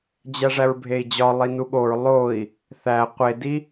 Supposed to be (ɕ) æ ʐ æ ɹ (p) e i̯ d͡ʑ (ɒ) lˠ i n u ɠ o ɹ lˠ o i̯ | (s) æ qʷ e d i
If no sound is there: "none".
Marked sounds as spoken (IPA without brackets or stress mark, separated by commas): d͡ʑ, bʱ, ɒ, θ